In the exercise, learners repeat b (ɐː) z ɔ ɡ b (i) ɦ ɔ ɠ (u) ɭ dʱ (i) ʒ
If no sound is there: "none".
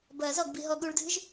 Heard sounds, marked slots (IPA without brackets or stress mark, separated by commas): ɐː, i, u, ɨ